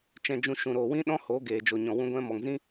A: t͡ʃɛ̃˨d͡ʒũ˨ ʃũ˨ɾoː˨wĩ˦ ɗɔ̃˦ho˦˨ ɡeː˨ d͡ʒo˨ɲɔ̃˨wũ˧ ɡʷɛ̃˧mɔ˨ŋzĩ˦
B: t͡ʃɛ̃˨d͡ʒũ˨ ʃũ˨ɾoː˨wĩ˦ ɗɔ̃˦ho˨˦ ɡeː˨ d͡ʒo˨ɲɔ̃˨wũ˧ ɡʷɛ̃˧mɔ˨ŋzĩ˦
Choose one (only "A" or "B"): B